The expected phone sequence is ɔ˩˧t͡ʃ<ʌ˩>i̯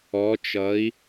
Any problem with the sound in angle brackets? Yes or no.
yes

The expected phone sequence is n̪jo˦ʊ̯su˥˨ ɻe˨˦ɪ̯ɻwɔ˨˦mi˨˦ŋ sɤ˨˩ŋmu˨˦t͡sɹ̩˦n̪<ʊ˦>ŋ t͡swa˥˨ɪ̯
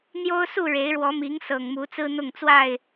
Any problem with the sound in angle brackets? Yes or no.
yes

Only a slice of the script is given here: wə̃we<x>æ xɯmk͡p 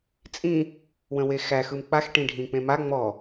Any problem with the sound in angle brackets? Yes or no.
no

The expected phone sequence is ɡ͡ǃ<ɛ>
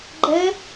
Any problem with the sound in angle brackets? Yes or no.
no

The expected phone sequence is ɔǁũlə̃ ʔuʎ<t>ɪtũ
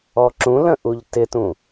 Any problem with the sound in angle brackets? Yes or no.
no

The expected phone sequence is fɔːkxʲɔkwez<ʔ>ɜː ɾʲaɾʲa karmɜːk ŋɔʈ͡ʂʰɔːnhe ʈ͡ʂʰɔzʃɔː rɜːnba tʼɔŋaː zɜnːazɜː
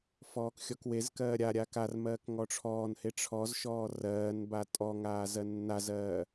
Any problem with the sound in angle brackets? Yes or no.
yes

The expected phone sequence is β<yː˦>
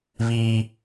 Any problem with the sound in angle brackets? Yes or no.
yes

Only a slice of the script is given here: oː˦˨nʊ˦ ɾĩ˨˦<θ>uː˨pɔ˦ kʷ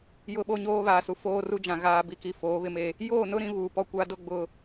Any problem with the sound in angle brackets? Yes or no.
yes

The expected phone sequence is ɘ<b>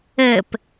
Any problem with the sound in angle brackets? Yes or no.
yes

